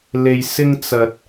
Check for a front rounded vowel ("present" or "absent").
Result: absent